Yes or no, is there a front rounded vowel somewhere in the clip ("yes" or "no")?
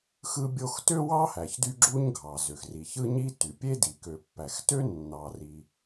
yes